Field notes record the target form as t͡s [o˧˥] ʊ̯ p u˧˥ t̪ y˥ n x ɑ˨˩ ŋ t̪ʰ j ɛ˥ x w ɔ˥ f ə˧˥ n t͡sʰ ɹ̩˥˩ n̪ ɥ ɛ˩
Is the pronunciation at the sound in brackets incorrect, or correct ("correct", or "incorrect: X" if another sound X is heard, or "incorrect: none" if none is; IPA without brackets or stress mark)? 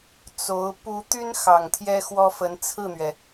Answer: correct